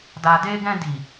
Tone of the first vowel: low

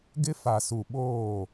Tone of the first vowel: high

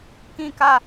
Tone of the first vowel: high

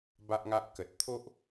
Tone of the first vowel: high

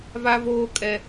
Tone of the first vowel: high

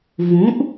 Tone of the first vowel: rising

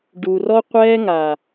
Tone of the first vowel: low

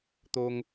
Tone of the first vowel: high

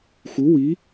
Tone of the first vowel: rising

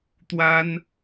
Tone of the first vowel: high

